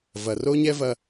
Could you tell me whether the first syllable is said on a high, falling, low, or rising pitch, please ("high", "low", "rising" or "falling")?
low